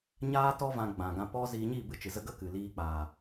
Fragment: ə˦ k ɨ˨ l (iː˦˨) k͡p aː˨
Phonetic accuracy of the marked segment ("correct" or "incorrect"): incorrect